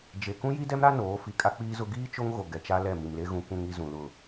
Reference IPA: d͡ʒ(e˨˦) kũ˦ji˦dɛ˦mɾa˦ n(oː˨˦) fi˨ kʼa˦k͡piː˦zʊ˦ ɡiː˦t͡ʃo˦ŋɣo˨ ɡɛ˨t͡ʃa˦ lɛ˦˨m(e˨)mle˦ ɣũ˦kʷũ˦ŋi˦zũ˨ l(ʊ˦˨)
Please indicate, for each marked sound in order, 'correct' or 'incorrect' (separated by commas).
incorrect, correct, incorrect, correct